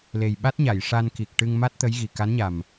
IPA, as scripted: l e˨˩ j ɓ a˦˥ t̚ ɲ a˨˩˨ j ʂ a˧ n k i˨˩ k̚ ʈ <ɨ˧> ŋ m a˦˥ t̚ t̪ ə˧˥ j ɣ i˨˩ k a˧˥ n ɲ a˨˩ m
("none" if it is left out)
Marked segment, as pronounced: ɨ˧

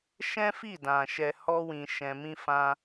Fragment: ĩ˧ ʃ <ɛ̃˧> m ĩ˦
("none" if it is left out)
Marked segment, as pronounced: ɛ̃˧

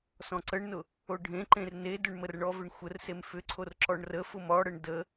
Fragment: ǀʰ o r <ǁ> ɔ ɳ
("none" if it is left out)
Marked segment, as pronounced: ǁ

